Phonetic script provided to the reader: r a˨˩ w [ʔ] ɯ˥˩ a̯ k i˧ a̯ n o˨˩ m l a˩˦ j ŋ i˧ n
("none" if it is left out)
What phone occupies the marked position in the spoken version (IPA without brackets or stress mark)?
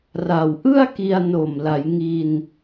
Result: ʔ